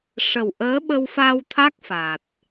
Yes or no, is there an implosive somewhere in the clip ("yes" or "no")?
yes